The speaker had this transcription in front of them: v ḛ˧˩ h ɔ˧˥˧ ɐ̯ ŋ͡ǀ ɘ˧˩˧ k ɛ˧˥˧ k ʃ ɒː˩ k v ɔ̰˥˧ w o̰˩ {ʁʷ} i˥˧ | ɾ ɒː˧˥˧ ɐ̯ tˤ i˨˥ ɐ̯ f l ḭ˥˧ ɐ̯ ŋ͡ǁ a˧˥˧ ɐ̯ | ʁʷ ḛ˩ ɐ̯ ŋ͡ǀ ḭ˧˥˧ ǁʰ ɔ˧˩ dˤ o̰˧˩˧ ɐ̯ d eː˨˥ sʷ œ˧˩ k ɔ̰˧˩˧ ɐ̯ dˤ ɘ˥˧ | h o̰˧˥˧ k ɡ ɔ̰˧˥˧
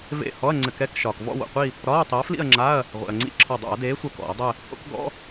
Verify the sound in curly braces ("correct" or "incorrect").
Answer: incorrect